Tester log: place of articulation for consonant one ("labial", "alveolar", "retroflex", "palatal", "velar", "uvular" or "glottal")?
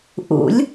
glottal